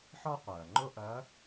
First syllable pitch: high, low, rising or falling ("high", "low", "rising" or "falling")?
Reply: high